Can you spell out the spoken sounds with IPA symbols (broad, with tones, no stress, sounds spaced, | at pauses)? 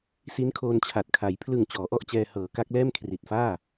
s i˦˥ n kʰ oː˧ n t͡ɕʰ a˨˩ t̚ kʰ a˩˦ j pʰ l ɯ˨˩ ŋ t͡ɕ ɔː˩˦ ʔ ɔ˥˩ ʔ t͡ɕ ɛː˧ h ɤː˩˦ k a˦˥ k̚ l ɛː˥˩ m kʰ r i˨˩ t̚ f aː˥˩